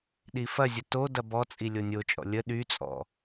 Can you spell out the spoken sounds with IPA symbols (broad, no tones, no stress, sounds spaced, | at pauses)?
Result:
ɗ i f ɐ zʲ ə t o d ɐ b ɔ t͡sʼ i lʲ o nʲ o t͡ʃʼ ɔ̰ lʲ ə ɗ y t͡sʼ ɔ̰